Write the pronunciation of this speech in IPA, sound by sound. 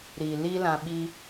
ɾ i˨ l i˦ l ã˧ ɓ i˦

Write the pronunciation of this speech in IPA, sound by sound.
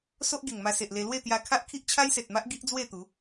s o˦ ʔ ɡ e˨˩ ŋ m a˧ s e˨ ʔ l e˧ l w e˥˧ t̪ j a˧ kʰ a˦ ʔ kʰ i˦ ʔ t͡ɕʰ a˦ j s e˨ t̚ m a˦ ʔ ɡ i˦ ʔ d͡z w e˥˧ t̪ u˨˦

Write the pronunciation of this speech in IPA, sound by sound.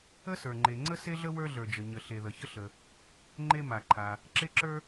ə˥ s ə˞˩ ŋ͡ǃ e˩ ŋ͡ǀ ə˥ s e˥ ɮ ə˥ w ə˞˥ ɮ ə˞˩ d͡ʒ ə˩ ɲ ə˩ ɬ e˩ ð ə˩ ç ə˥ ɬ ə˩ | ŋ͡ǃ e˥ m a˩ ǃʰ a˩ | ǁ e˥ ǁ ə˞˥

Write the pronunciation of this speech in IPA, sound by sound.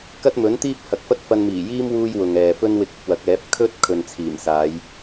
k ɐ˥ t̚ m ɵ˨˥ n t̪ iː˥ p̚ h ɐ˨ k̚ f ɐ˥ t̚ f ɐ˧ n m iː˨˩ j iː˥ m w uː˥ j w ʊ˨ ŋ ɛː˨ f ɵ˥ n w ɪ˧ k̚ ɪ˧ k̚ w ɐ˨˥ k̚ ɛː˨˥ p̚ kʰ ɵ˥ t̚ kʰ ɵ˨ n t͡sʰ iː˨˩ m s aː˨˧ j

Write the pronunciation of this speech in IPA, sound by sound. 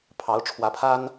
pʰ ɑ˨˦ ʊ̯ ʈ͡ʂʰ w ä˨˦ pʰ a˦ n

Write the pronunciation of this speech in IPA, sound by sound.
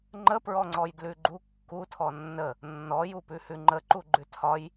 ŋ͡ǃ ə p ɹ ɔ ŋ͡ǀ ɔ j d l ʉ ɡ͡ǃ u kː u tʰ ɔ nː ə | nː ɔ j u p ʉ h ʉ ŋ͡ǃ ə ǃ u ɡ͡ǃ ʉ tʰ ɒ j

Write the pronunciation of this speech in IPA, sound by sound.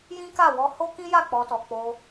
j ĩ˦ k a˦˨ w ɔ˧ h o˦ k ĩ˦ j a˦˨ k͡p ɔ˧ t ɔ˨ k͡p o˧

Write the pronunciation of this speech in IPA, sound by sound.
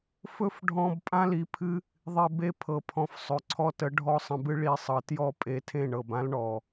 f ɵ˦ f ɖʱ ɔ̃˧ b pʼ ã˦ l i˨ pʰ ɨ˦ | ðˤ e˧ b e˦ pʰ ɤ˨ pʰ ɔ̃˨ f sˤ ɵ˨ ǀʰ ɔ˧ t ə˨˦ ɖʱ ɔ˦ sˤ ə̃˧ b ɨ˦ ɭ i˧ sˤ ɤ˨ t j ɔ˦˨ pʼ e˧ tʰ ẽ˦˨ ɳ ɤ˨ b ã˦ l ɳ ɔ˨

